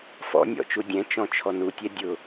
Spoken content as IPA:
f ɔ̰ nʲ ɔ̰ t͡ʃ u dʲ ɛ̃ t͡ʃ ɔ̃ t͡ʃʰ ɔ n u tʲ ɛ dʲ ʊ

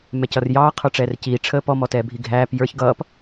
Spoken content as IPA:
m ɛ c ʌ r j ɑː qʰ ə˞ ʈ͡ʂ ɛː r c iː ʈ͡ʂʰ əː p ɔ m ɔ t ɛː bʱ i ɡʱ æː p j ə˞ ç ɡ ʌː p

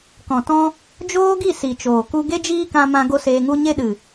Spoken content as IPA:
k ɔ̃˨ t ɔ̃˧ | d͡ʒ oː˦ ɡ i˦˨ s i˨ t͡ʃ oː˨ k u˦ ɡ e˦ d͡ʒ iː˦ k ã˧ m ã˧ ɡ o˦ s eː˧ ŋ u˦ ɲ e˦ ɗ ɨ˨

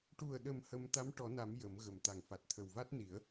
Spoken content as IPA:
ʈ u˨˩ ə̯ ɗ ə˨˩ m h ə˧ m t̪ a˧˥ m ʈ ɔ˨˩˦ n a˨˩˦ m j ə˨˩˦ m ɣ ə˨˩ m t̪ a˨˩ ŋ f a˨˩ t̚ t̪ʰ ə˨˩ w v a˦˥ t̚ n i˨˩˦ ə̯

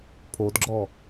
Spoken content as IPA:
pʰ o d ɡ͡ǁ ɔ

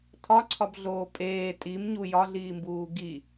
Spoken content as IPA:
tʰ ɒ ǀʰ ɒ b ɮ oː pʼ eː tʼ i m ɲ u j ɒ ɮ iː m b uː ɡ i

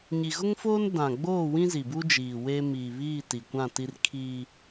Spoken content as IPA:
ɲ i˨ ɣ ʊ˦ ŋ f oː˦ n d ã˨ ɡ͡b oː˦˨ w ĩ˦ z i˨ b u˦ d͡ʒ iː˨ w e˦ m iː˨ β iː˦˨ t i˨ kʷ ã˦˨ t i˦ r kʰ i˦

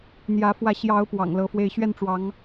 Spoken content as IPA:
n̪ j ä˨˦ f w ä˨˦ ɕ j ɑ˨˦ ʊ̯ p w ɑ̰˨˩ ŋ l ɤ˨˦ f w e˥˨ ɪ̯ ɕ ɥ ɛ˥˨ n ʈ͡ʂ w ɑ˨˦ ŋ

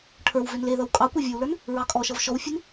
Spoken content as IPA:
ʈʰ ə˞ w v ø n l e ð ʌ w kʼ ɑ kʷ ɑ vʲ ə˞ w l ə˞ n | ɹ ɑ kʼ ɔ ʃ ʌ v ʃ ɔ w fʲ e n

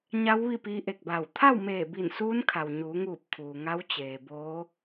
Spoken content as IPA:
ɲ a˧˥ w ʋ i˥˨ p iː˧˥ ʔ e˧˩ k̚ b aː˧˩ w t̪ʰ a˥˨ w m eː˧˩ b i˧˩ n s uː˧˥ n kʰ a˩ w ɲ uː˩˧ ŋ uː˧˩ p̚ kʰ uː˩ ŋ a˧˥ w t͡ɕ eː˩ b oː˧˥

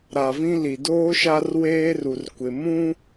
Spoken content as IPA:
ɾ a˨ v ĩ˦ l i˨ d oː˦ ʃ a˦ r w eː˦ r u˨ r kʷ ɪ˨ m ũ˦

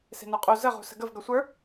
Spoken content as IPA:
s e̤ n ə˞ qʼ u z ə ʁ ṳ s ə̤ ɡ ə v ɡ ʌ sʷ ə˞

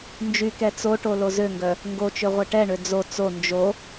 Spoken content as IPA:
n d͡ʒ y k ɛ t͡s o ʈ o l o z ø ŋ ɡ œ | ŋ ɡ o t͡ʃ ø ʁʷ ɛ ʈ ɛ ɳ ø d͡z o t͡s o n d͡ʒ o

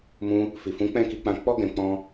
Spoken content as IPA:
m ũ˧ | f i˨ f ũ˨˦ k͡p ɛ̃˦˨ k i˧ k͡p ã˧ k͡p ɔ˦ ɡ ɛ̃˧ k͡p ɔ̃˦

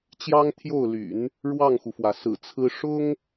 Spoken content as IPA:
t͡ɕ j ɑ˥ ŋ t̪ʰ j o˥˩ ʊ̯ l y̰˨˩˦ n | ɻ w ɑ˥˩ ŋ x u˩ f w ä˩ s ɹ̩˨˩ t͡sʰ ɹ̩˥ ʂ ʊ˥ ŋ

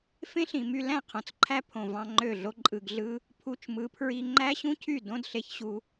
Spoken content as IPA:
f ẽ˦ ɬ ĩ˨ m y˧ l æ̃˦˨ qʰ õ˨ t͡s ǃʰ æ˦ pʰ õ˨ v ɑ̃˧ ŋ͡ǃ ø˦˨ ɮ o˦ ǃʼ ɯ˨ ɡ ɮ ɯ˦ | pʰ u˧ t͡ʃ m ɯ˨˦ pʰ ɹ i˧ ŋ͡ǃ æ˦ ɕ ũ˦ cʰ y˦˨ d õ˦ d ɬ e˨ ç ɕ u˧

